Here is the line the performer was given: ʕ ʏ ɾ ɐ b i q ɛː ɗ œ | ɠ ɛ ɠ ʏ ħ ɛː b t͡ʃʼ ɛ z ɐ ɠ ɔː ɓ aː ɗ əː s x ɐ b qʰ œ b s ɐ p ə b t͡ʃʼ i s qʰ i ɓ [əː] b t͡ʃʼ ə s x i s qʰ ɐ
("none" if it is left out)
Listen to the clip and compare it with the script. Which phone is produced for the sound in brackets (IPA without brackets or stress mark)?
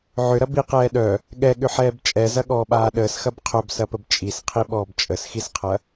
ɔː